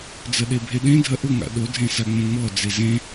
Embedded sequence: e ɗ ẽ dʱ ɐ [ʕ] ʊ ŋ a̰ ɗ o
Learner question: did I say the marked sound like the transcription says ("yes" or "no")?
no